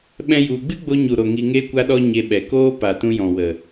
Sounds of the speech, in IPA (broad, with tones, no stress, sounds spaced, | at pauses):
ɓ ɛ̃˦ j u˧ ɡ͡b ɨ˦ ɡ͡b o˧ ɲ u˨ ɾ o˨ ŋ i˧ ŋ e˦ kʷ a˦ ɗ ɔ˦ ɲ e˧ ɓ ɛ˨ k oː˦ p a˨ t ũ˧ j ɔ̃˨ w ə˨